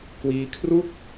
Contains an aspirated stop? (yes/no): yes